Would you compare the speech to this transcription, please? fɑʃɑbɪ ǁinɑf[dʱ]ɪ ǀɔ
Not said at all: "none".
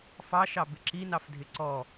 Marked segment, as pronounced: dʱ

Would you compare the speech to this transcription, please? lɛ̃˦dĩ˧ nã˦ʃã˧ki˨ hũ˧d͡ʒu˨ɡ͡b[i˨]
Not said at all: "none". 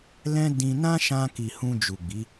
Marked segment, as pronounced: i˨˦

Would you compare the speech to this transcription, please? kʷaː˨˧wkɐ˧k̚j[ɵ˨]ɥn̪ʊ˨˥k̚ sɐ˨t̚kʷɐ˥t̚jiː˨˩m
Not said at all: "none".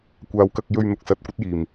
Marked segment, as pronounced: ɵ˧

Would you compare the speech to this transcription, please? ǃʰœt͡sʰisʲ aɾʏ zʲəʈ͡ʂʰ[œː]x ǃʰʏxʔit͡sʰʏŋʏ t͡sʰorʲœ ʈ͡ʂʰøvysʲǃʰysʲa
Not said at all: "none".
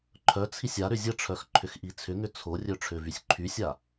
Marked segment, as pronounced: œ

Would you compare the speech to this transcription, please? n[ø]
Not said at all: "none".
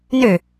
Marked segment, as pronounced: ø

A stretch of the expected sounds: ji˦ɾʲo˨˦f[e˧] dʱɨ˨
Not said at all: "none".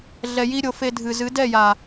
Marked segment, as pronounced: e˧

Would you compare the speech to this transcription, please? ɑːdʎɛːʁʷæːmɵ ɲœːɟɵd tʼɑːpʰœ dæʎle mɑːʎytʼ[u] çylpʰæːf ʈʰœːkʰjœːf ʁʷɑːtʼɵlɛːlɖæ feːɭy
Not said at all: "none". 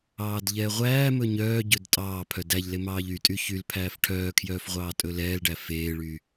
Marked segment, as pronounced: y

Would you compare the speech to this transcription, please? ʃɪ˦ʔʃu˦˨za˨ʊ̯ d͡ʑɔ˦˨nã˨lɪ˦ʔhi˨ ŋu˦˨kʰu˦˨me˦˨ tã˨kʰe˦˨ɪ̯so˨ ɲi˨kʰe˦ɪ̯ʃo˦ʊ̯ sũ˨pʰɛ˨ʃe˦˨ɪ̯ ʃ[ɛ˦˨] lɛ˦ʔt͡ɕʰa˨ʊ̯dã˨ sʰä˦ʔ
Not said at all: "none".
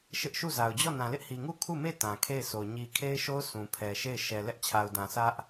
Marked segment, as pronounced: ɛ˨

